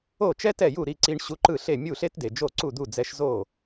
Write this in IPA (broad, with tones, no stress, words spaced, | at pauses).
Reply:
o˥˩t͡ʃɛ˥tɛ˥˩ju˥˩ ɾi˧ǀi˧ɳ ɕu˧ǃɯ˥˩ɬe˥˩ mʲu˥˩ɬe˥tde˩ d͡ʒo˥˩ǀu˥˩d̪u˥˩d͡zɛ˧ʃ zo˥˩